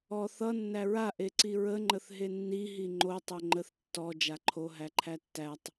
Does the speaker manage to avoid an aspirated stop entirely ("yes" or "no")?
no